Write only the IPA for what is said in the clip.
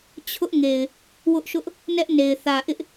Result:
t͡ɕʰ ʊ˦ ʔ ŋ e˨ ɪ̯ | w ʊ˦ ʔ ʃ ʊ˦ ʔ | n ɛ˦ ʔ n e˨ ɪ̯ θ ä˨ ʔ ɪ˦ ʔ

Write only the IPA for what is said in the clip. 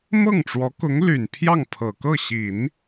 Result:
m ɤ˥˩ ŋ ʈ͡ʂ w ɔ˧˥ k ʊ˧˥ ŋ l y˨˩ n pʰ j ɑ˥˩ ŋ pʰ ɤ˨˩ k ɤ˥˩ ɕ i˨˩˦ n

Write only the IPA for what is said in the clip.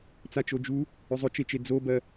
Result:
t͡s a t͡ʃ o d͡ʒ u | ʏ zˤ ʏ t͡ʃ e t͡ʃ e d͡z o b ɜ

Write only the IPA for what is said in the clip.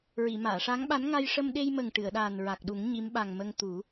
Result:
ɹ i˨˩˨ m aː˨˩˨ ʂ a˧˥ ŋ ɓ a˧˥ n ŋ a˧ j ʂ ə˧ m ɗ e˧ j m ə˨˩ ŋ ʈ ɨ˨˩˨ ə̯ ɗ aː˨˩ n ɹ a˨˩ k̚ ɗ u˨˩˦ ŋ ɲ i˧˥ m ɓ a˨˩ ŋ m ə˧ ŋ t̪ u˨˩˦

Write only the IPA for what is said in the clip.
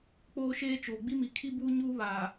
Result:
k͡p oː˦ ʃ eː˦ t͡ʃ oː˨ ɡ͡b i˦ m i˨ kʰ i˦ b uː˦ ɲ uː˦ β aː˨

